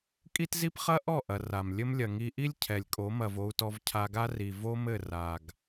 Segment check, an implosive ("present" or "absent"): absent